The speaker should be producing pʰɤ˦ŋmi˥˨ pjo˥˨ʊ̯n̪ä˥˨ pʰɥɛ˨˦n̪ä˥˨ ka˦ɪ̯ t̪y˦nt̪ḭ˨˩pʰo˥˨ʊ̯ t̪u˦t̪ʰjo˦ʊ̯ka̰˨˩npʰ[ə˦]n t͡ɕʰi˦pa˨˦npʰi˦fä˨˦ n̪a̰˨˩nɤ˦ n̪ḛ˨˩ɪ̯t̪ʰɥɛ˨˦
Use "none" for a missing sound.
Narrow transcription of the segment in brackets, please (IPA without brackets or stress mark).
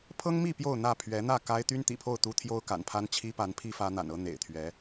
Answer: a˦